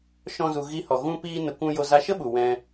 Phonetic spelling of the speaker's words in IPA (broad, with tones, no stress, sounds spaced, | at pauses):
ʃ ɔ̃˦ z u˧ ɣ i˧ h ɔ˨ ɣ ũ˦ p iː˦ n ə˧ kʷ ũ˧ j o˧ z a˧ ʃ ə˦ ɓ u˨ w ɛ̃˧